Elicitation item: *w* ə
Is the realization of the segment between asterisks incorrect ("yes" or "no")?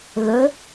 yes